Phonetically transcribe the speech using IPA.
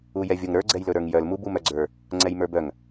u j ɛ vʲ o ŋ ɾ ə˞ ɡ͡ǀ ɛ j l ɵ ɾ ə˞ ŋ j œ l m u b u m œ ɡ͡ǀ ə˞ | ŋ͡ǀ ɛ j m ə˞ b œ ŋ

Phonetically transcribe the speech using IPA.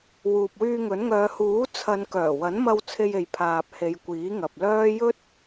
w uː˨ p̚ w yː˧ ŋ ɵ˨˥ n ŋ œː˨˧ h uː˨˥ t͡sʰ ɐ˨˧ n k œː˨˩ w ɐ˨˥ n m ɐ˧ w t͡sʰ e˧ j e˨ j pʰ aː˨ p̚ h e˨˧ j kʷ iː˨˥ ŋ ɐ˨ p̚ l œː˥ j ɵ˥ t̚

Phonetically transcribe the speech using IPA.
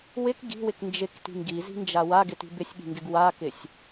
w ɪ k ɡ i̤ w ɪ k n d͡ʒ ɪ k t i̤ ŋ ɡ i z i̤ n d͡ʒ a w a ɡ ɪ t i̤ b ɪ sʲ ɠ i̤ ŋ ɡ ɪ ɡ w a k ɪ sʲ

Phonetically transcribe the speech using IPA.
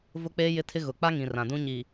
v ʊ˦ k͡p eː˦ j ɪ˦ tʰ ɪ˦ ɣ ʊ˨ k͡p a˦ ŋ ĩ˨ r ã˨ d ũ˦ ɲ i˨

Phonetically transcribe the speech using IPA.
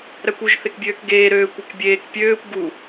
ɾ æ kʷ u ʒ θ e k bʲ øː k ɡ eː ɾ øː kʷ æ k bʲ eː k pʲ øː kʷ ɡ u

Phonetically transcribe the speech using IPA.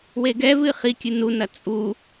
w e ɡ ɛ v ɨ χ i kʲ ɨ n u n ɐ t͡sʼ u

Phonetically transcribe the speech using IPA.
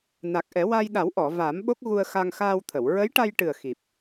n a˨˩ k̚ ʔ ɛ˨˩˦ w a˧ j ɗ a˨˩˦ w ʔ ɔ˨˩˨ v aː˨˩˦ m ɓ o˦˥ k̚ ɣ u˧ ə̯ x a˧ ŋ x aː˧ w t̪ʰ ə˨˩˨ w ɹ ə˧˥ j ʈ a˧ j ʈ ɨ˨˩ ə̯ x i˨˩ p̚

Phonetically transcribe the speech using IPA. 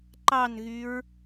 ǃ ɑ n ɣ y ɹ

